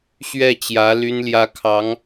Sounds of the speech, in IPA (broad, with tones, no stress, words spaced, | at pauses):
ɕɥɛ˥˩t͡ɕjä˧˥ ly˥nljä˥kʰɑ˧˥ŋ